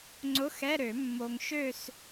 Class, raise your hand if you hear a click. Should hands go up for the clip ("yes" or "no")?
yes